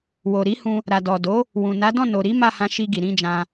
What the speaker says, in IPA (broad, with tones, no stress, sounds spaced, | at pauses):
w o˨ ɾ i˨˦ h ũ˧ | ɾ a˨ d ɔ˨ d o˨˦ | w ũ˨ n a˨˦ d ɔ̃˦˨ n o˨ ɾ i˨˦ m a˦˨ h ã˧ ʃ i˧ ɡ i˨ ɾ ĩ˧ d͡ʒ ã˧